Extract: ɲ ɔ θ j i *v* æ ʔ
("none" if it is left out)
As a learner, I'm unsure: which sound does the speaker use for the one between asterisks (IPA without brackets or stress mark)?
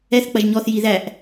ð